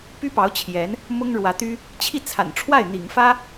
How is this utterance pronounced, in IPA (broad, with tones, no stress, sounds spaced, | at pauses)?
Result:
p y˥ p ɑ˧˥ ʊ̯ t͡ɕʰ j ɛ˧˥ n | m ʊ˥ ŋ ɻ w ä˧˥ t̪ y˥ | t͡ɕʰ i˥˩ t͡sʰ a̰˨˩ n ʈ͡ʂʰ w a˥˩ ɪ̯ n̪ ḭ˨˩ ŋ f ä˥